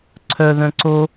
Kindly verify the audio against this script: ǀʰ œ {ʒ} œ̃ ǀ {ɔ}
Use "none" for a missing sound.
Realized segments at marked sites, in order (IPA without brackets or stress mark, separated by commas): ð, o